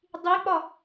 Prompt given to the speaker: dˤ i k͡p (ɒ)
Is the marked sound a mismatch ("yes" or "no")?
no